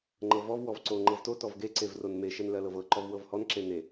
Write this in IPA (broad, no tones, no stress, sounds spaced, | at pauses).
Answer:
ŋ͡ǃ ɤ v ɔ v w ɔ v ǀ o ŋ͡ǃ ɤ v t o t ɔ v ɡ e ǀ e v r o n m e ʃ ɜ n l ɜ l ɤ v ɤ ǃ ɔ v w ɤ v h ɔ n ǁ e n e